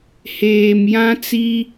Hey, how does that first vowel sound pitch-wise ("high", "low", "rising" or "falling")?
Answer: low